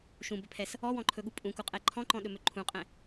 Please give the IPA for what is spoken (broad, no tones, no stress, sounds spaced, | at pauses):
ʃ ũ b ɵ pʰ ɛ s | ɔ w ɔ̃ ǃʰ ɵ ɠ u pʼ ũ k u qʼ ɛ ǃʰ ɔ̃ ǃ ɔ̃ ɗ ɵ m ɵ ǃʰ ũ qʼ ɛ̃